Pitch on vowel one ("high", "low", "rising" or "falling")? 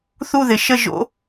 falling